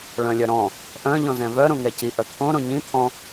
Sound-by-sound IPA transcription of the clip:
ɭ œ̃ lʲ œ ɾ ɔ̃ | ʔ œ̃ ʎ ɔ̃ z ɛ̃ v œ ɾ õ ŋ ɛ c i ʔ œ t̪ʰ õ ɾ õ ɲ ĩ t̪ʰ ɔ̃

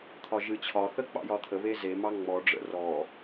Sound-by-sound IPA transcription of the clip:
t̪ʰ ɒ ʒ ɨ t͡ɕʰ ɒ θ ə k͡p ɑ̰ j ɒ t̪ʰ ə β e z e m ɑ ŋ͡m ɔ ɖ͡ʐ ə̰ r ɔ

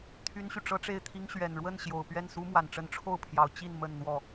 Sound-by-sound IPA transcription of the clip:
t̪ʰ y˥ n ɕ y˨ ʈ͡ʂ ɤ˥ ʈ͡ʂ e˥˩ ɪ̯ t̪ʰ i˥ ŋ ɕ ɥ ɛ˨˩ n ɻ w ə˥˩ n ɕ j o˨˩ ʊ̯ p ɥ ɛ˥˩ n s u˥ m w a˨˩ n ʈ͡ʂ ə˧˥ n ʈ͡ʂʰ o˥˩ ʊ̯ pʰ j ɑ˨˩ ʊ̯ t͡ɕ i˥˧ n m ə˥˧ n n̪ w ɔ˥˩

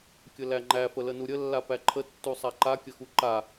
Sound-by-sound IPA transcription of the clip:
kʲ ə l æ ŋ͡ǃ æ f ə l ə n u ɾʲ ə lː a p æ ǃʰ ə tː u sˤ a ǃ a kʲ ə x u ǃ a

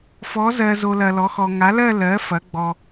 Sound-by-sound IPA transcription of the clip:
f ɔ˩˥ z ɜ˨ z o˨ l ɐ˨ l ɔ˩˥ x ɔ˨ ŋ a˩˥ l ɜ˥˧ l ɜ˩˥ f ɐ˩˥ ɡ͡b ɔ˨

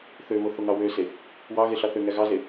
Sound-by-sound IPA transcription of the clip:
θ ø β o θ o ŋ ɑ w ø s e | w ɑ ɣ e ɬ ɑ θ ø ŋ æ ɣ ɑ z e

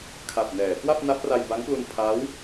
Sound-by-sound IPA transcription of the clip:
kʰ a˨˩ p̚ n ɛː˩˦ k w a˥˩ p̚ n a˦˥ p̚ r a˧ j b a˦˥ ŋ p l u˧ n pʰ a˦˥ w

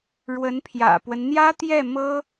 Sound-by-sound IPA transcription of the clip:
ɻ w ə˧˥ n pʰ j ä̰˨˩ p w ə˦ n n̪ j ä˥ t̪ j ɛ˥˩ m ɤ˥

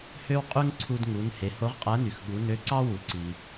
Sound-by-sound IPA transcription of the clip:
h ø˥ w qʼ y˥ ŋ ǀʰ u˧ d ŋ u˩˧ n h e˩˧ h o˧˥ ʁ qʼ æ˧˥ n y˩ x ɠ u˩˧ n ø˧˥ ǀ ɑ˥ w u˩˧ ǀ i˩

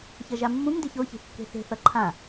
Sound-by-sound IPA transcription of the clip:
ç ʌ ʒ a mː ũ ŋ d e ç o ç e̤ kː e̤ θ e̤ θ ʌ ǃʰ ã

